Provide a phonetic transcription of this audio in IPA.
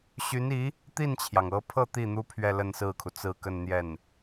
ɕy˧˥ni˧˥ | t̪i˥˩nt͡ɕʰjɑ˩ŋɤ˧˥pʰɤ˥˧ t̪i˥˩n̪u˥ pʰɥɛ˥˧lə˥˧nsɹ̩˥˩kʰu˩ t͡sɹ̩˥˧kə˥˧nn̪jɛ˥˩n

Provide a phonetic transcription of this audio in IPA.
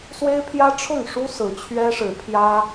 swe˦ɪ̯pʰjä˦ ʈ͡ʂʰʊ˥˨ŋ ʂu˦ sɹ̩˨˦t͡ɕʰɥɛ˦ʂɻ̩˨˦ pʰjä˦

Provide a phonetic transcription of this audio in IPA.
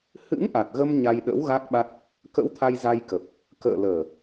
hɨ̰˧˥ŋʔa˨˩t̚ ɣə˧m ɲa˧jɗə̰˧˥w ɣa˦˥k̚ɓa˦˥t̚ | kə̰˧˥wt̪ʰa˧jza˧jkə˨˩p̚ | kə̰ː˧˨ləː˨˩

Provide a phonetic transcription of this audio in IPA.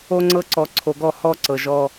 o˦ŋ͡ǀɤ˦ǀɔ˨ ǀʰo˨ɡɔ˦˨ hɔ˦ ǀɤ˨ʒɔ˦

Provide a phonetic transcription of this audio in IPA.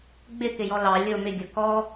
ɡ͡bɪkɪ jɔlɑ lʲʊ mɪɡʲʊ kɔ

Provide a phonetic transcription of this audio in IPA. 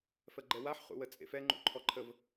fɜɡ͡ǃɛwaħ χṵwət͡sʼḛfɛ ŋ͡ǃṵ ǃʰɔǃʰəv

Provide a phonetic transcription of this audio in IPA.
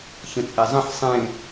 çə̃t͡sʼezˤə̃ħ sˤẽ

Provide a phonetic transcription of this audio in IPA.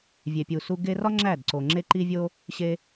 vʲe˨pʲu˨su˧ ɡe˧rɒ˦ ŋ͡ǁæ˦˨d ǀo˨ŋ͡ǁe˦ ǃi˦vʲo˦ | ɕe˧

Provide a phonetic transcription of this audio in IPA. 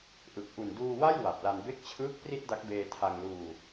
ʔɯ˨˩k̚ ʔu˨˩nduː˧wa˥˩j wa˨˩p̚la˧n be˦˥k̚t͡ɕʰɯː˦˥k̚ pri˥˩t̚da˦˥k̚beː˧ tʰa˧ŋluː˧

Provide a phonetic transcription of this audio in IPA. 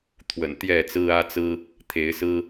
t̪ʰwə̰˨˩nt̪jɛ˥˨t͡sɹ̩˦ ä˦t͡sɹ̩˦ | t̪ʰe˨˦ɪ̯ sɹ̩˦

